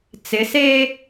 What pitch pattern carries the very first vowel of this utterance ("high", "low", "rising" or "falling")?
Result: rising